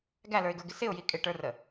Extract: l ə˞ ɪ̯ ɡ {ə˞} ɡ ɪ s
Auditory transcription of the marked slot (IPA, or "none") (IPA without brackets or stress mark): ə˞